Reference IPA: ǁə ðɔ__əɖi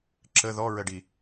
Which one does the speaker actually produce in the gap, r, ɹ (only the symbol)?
ɹ